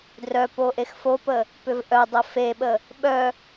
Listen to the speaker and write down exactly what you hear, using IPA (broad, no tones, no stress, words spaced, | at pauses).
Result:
drœ poʔexfopə | pʏvʔœdˤə feɓə | ɓœ